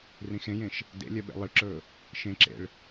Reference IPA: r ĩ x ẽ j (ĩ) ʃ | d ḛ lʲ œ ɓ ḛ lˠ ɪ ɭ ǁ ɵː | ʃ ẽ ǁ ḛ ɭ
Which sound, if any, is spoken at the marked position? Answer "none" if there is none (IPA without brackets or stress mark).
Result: ẽ